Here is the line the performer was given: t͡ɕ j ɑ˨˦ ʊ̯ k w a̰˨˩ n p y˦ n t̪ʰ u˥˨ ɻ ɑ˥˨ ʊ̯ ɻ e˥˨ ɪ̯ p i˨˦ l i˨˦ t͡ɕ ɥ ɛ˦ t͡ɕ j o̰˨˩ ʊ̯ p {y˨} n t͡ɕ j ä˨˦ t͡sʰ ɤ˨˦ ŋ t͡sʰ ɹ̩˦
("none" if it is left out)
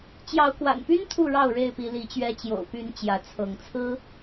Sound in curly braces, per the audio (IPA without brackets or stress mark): y˨˦